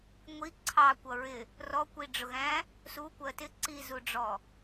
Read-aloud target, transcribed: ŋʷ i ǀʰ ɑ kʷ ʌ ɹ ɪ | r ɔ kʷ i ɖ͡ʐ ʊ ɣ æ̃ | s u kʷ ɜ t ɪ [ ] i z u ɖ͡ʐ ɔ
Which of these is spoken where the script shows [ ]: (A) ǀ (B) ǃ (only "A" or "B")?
A